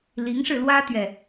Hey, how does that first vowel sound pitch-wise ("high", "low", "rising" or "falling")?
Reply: rising